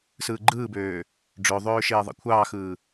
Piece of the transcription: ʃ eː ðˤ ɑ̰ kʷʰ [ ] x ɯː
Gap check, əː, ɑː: ɑː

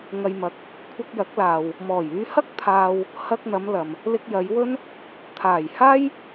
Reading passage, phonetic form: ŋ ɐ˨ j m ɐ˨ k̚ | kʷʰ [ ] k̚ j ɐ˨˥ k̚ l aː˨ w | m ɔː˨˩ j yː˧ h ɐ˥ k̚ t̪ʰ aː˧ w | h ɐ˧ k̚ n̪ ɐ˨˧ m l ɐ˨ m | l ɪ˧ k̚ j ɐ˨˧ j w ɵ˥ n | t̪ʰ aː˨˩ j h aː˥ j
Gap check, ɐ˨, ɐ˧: ɐ˧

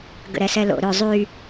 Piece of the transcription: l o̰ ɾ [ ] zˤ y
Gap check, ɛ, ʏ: ʏ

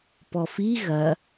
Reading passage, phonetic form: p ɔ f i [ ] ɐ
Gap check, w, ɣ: ɣ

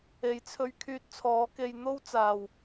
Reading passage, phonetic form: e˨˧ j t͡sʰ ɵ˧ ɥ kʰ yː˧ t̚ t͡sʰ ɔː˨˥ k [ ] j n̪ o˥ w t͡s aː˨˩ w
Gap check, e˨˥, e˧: e˧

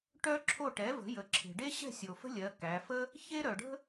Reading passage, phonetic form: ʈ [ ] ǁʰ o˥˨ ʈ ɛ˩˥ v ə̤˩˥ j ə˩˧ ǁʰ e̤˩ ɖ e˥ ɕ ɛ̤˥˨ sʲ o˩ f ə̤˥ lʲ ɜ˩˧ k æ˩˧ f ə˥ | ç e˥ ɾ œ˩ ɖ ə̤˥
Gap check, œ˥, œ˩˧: œ˥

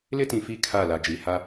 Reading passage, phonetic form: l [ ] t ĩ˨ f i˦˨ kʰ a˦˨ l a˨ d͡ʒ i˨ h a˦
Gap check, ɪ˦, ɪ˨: ɪ˦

